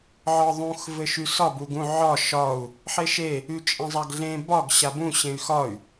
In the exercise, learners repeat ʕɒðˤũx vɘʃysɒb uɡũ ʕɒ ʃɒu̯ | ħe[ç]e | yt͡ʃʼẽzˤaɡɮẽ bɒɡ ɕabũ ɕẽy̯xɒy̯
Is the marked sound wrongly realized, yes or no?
yes